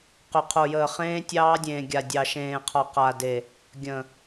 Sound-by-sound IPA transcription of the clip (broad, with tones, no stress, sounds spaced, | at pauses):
q ʏ˨ qʰ o˨ j əː˨ χ ẽː˦ tʲ ɑː˦ dʲ ẽː˨ ɡʲ a˨ dʲ ɑ˨ ʃ ẽː˨ qʰ ɒ˨ q a˨ d e˨ | ɡʲ ə̃˨